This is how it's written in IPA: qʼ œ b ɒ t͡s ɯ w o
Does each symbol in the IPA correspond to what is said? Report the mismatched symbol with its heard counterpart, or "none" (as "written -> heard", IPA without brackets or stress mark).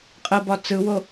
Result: œ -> ə